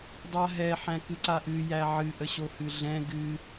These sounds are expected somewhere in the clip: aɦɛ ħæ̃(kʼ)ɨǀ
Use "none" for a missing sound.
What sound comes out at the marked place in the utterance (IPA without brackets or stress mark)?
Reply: k